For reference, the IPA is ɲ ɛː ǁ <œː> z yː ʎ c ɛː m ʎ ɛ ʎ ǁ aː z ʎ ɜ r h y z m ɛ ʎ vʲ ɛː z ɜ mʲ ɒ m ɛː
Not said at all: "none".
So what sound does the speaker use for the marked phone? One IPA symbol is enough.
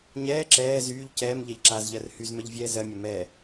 ɛː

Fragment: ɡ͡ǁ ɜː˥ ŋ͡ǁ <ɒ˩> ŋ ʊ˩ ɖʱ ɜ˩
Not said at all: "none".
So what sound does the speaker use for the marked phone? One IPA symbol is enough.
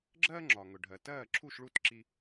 ɒ˩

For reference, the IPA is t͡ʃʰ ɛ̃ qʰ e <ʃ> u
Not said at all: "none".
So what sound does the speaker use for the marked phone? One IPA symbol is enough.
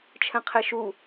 ʃ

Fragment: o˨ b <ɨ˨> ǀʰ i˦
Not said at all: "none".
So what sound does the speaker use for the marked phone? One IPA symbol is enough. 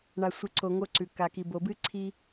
ɨ˦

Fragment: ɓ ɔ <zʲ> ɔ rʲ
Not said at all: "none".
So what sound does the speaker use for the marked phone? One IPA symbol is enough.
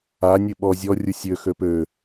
zʲ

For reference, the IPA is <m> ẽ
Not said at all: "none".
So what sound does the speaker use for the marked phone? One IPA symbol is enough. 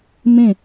m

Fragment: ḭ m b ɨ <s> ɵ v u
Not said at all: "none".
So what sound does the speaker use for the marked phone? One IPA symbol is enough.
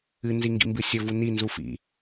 sʲ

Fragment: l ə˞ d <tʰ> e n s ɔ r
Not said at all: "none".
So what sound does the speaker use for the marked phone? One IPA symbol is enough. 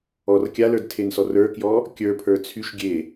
tʰ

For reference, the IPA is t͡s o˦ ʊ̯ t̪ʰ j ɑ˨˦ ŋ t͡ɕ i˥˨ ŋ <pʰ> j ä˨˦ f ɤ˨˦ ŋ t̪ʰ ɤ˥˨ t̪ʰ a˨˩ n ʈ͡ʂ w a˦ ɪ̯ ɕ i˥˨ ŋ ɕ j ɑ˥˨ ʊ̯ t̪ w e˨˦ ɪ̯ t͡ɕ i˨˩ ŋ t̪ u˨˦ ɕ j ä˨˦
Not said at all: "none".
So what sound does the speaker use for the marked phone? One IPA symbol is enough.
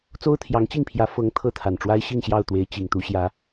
pʰ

